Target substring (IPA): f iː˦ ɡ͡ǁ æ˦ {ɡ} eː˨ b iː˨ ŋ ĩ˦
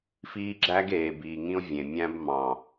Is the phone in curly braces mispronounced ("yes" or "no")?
no